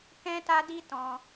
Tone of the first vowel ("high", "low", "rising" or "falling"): high